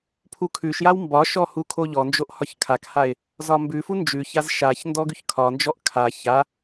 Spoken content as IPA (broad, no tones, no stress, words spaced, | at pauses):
pʰukʰʉʃjaw mbɒʃɔ hukʰoʎɔnd͡ʒoʔ hɒçkʰakhaɪ̯ | zɒmbʉfu nd͡ʒʉçaz ʃaç ndɔɡʉçkʰɒnd͡ʒɔʔ kʰa ça